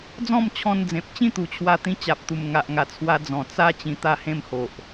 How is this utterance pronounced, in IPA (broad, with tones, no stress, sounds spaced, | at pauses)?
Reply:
d͡z ɔ̃˥˧ m t͡ɕʰ ɔ̃˧ n d͡z ẽ˨ p̚ t͡ɕ ĩ˥˧ t̪ u˨˩ t͡ɕʰ w a˧ t̪ ĩ˧ t͡ɕ a˨ p̚ t̪ u˨˩ m ŋ a˨ ʔ ŋ a˨˩ t͡sʰ w a˧ d͡z ɔ̃˨˩ t͡s a˦ t͡ɕ ĩ˧ t̪ a˥˧ h ẽ˥˧ m h o˨ ʔ